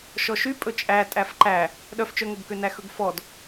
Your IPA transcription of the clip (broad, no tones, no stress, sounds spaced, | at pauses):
ʃ ɔ ʃ y pʼ ɵ t͡ʃʼ æ tʼ æ f ǃ æ | ɗ œ f t͡ʃ œ ŋ ɵ b k ø n æ x ɵ ɡ f ɔ d